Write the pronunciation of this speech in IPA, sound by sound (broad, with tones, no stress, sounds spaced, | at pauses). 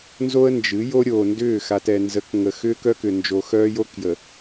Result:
n z o˦ ə̯ n d͡ʒ ɨ˨˦ j o˦ ɾʲ oː˨ n d ʏː˦˨ x a˨ t ɛ˨ n z ə˨˦ k ŋ ə˨ x ʏː˦ k œ˦ k ʏ˨ n d͡ʒ o˨ x œː˦ j o˦ k j ə˨